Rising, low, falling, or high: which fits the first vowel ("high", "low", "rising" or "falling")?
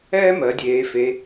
high